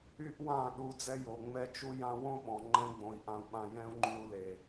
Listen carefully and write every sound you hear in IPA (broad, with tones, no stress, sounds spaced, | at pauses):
y˦ ʔ w ã˦˨ ɗ u˧ d͡z ɛ˦ j o˨ ŋ͡m ɛ˦ t͡ʃ u˦ j ã˦ w õ˦ ɓ ɔ̃˨ ŋ͡ǃ ɛ̃˦ ɡ͡b õ˧ i̯ ʔ ã˧ u̯ ɓ ã˧ j ɛ̃˦ u̯ ŋ͡ǃ y˧ u̯ l e˨